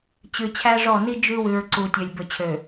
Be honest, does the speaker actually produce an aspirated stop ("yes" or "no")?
yes